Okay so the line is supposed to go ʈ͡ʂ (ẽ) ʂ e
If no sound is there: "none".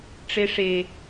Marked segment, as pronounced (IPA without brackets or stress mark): e